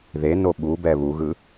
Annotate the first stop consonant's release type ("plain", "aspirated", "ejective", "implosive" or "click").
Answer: implosive